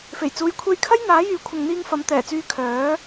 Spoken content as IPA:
f e˨˩ j t͡s uː˨ j kʷʰ e˧ j kʰ ɐ˥ j n̪ aː˨˥ j yː˨˥ kʷʰ ɐ˨ ŋ n̪ iː˧ ŋ f ɐ˨˧ m t̪ ɛː˨˩ t͡s yː˧ kʰ œː˨˥

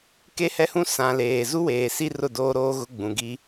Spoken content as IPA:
k e˦ h ɛ˦ h ũ˦ s ã˨ l eː˨ z u˦ w eː˨ s i˦ r ʊ˦˨ d oː˦ ɾ oː˦ ɣ ʊ˦ ɡ͡b ũ˨ ɡ i˦

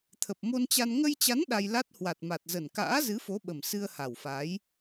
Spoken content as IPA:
t̪ʰ ə˨˩ p̚ m o˧ n t͡ɕ a˧ n ŋ ə˧ j t͡ɕ a˨˦ n ɗ a˧ j l a˦˥ t̚ h w a˨˩ t̚ m a˨˩ t̚ z ə˨˩ n k a̰ː˧˥ z ɨ˨˦ f o˨˦ ɓ ə˨˩ m s ɨ˧ ə̯ h a˨˩ w f a˨˦ j

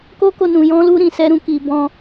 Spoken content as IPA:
k o˦ k o˧ n ũ˨ j ɔ̃˧ l u˧ ɾ ĩ˨ s ɛ˧ ɾ ũ˧ k i˨ b ɔ̃˧

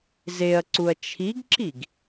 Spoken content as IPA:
z e ɐ̯ ǀ u ɐ̯ t͡ʃʰ i ɡ ǁ i ɡ

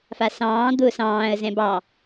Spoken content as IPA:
f a s ɑ̃ː d̪ ʊ s ɑ̃ː ə̯ z ɛ̃ b ɑ

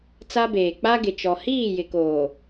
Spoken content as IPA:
t͡s a˦ b eː˨ k͡p a˦ ɡ ɪ˨ t͡ʃ ɔ˨ h iː˦˨ j ɪ˨ k oː˨

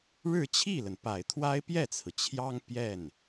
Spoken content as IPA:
ɻ ɻ̩˥˧ t͡ɕʰ i˥˩ l ə˩ n p a˨˩ ɪ̯ t̪ʰ w a˥ ɪ̯ p j ɛ˥˩ t͡sʰ ɹ̩˩ t͡ɕʰ j ɑ˥ ŋ p j ɛ˥˩ n

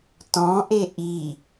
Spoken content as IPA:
t ɔ̃ ʔ e ʔ i

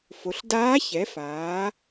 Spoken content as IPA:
f o˩˧ ɬ d aː˧˥ ç ɛ˩˧ f aː˩˧

